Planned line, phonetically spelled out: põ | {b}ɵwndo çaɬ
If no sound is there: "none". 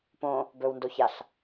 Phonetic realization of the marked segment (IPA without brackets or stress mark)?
b